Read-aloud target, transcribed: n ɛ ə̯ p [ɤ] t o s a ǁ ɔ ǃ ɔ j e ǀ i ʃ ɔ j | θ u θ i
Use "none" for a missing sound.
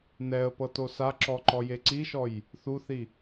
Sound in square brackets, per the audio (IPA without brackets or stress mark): ɤ